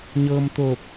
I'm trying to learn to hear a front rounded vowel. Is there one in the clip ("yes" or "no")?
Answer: no